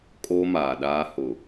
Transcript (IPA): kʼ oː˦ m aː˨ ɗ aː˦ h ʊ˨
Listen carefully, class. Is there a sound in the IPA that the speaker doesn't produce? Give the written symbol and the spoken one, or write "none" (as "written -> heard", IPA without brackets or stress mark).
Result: none